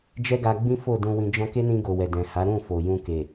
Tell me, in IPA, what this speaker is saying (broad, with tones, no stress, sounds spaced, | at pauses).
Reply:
d͡ʒ ɛ˦ ɡ a˧ ɡ͡b ĩ˦ f o˦˨ d ũ˧ w ĩ˧ d͡ʒ ɔ̃˧ k e˦ n ĩ˧ ɡ o˨ w ɛ˨ d ɛ̃˨ h a˨˦ ɾ ũ˦˨ f o˨ j ũ˧ k e˨